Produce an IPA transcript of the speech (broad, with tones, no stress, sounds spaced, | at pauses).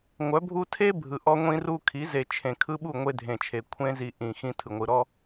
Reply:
ŋʷ œ˨˦ bʱ u˦ tʰ e˦ bʱ ɯ˨ ʔ ɔ˦ ŋʷ ĩ˦ r u˦ kʰ i˨˦ z e˨ t͡ʃʰ ẽ˨ kʰ ɯ˦ ɓ u˦˨ ŋʷ e˦ dʱ ẽ˨ t͡ʃʰ e˨ kʷʰ ẽ˦ z i˨ ʔ ĩ˨ x ĩ˦ tʰ ɯ˨ ŋʷ ɯ˨ ɾ ɔ˦